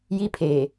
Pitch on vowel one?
high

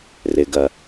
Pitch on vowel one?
low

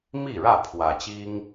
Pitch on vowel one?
falling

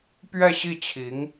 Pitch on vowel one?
falling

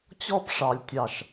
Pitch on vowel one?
high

